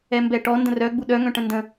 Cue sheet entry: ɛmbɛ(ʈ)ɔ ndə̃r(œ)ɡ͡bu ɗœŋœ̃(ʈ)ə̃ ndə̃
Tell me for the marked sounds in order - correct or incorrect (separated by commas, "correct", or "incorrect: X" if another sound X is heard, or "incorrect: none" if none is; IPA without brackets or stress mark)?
correct, correct, correct